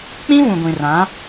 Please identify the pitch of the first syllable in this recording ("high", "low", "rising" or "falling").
high